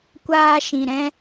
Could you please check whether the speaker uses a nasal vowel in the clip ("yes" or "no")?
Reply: yes